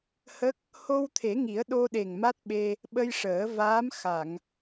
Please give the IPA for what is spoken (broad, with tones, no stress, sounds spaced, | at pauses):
h ə˦˥ k̚ | h o˧ w t̪ʰ e˨˩˦ ŋ i˨˩˦ ə̯ ɗ o˧ ɗ e˨˩ ŋ m a˦˥ t̚ ɓ e˧ | ɓ ə˧ j ʂ əː˨˩˦ v aː˧˥ m x a˨˩˨ ŋ